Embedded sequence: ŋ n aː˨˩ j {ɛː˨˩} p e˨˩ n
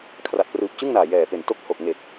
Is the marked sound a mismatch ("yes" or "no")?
no